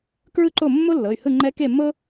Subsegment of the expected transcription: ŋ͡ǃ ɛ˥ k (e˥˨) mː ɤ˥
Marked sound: correct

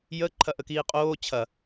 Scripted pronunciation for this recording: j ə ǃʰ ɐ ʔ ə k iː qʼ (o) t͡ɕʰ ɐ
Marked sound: incorrect: oː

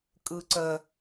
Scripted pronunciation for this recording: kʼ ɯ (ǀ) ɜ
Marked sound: correct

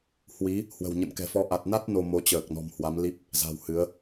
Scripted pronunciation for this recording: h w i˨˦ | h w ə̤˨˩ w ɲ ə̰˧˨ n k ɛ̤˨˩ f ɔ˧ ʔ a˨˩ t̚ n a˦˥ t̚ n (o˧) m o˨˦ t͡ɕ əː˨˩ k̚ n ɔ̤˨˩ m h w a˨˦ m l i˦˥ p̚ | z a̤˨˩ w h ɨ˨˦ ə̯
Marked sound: correct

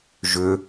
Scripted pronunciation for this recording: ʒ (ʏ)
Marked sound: correct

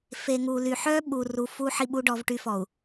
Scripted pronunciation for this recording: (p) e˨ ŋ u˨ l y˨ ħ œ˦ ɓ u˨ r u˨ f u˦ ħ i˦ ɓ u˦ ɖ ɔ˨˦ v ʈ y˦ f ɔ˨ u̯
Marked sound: incorrect: f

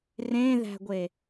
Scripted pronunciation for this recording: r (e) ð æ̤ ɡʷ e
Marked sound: incorrect: ẽ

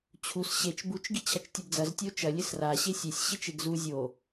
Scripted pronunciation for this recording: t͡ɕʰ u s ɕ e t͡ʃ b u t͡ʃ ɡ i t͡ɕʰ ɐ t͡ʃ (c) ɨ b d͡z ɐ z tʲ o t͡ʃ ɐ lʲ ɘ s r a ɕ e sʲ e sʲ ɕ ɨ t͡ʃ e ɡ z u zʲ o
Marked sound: incorrect: tʲ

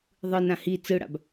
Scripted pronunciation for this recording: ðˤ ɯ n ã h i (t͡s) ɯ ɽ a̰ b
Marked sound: correct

